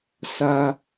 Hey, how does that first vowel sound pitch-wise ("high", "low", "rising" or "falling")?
high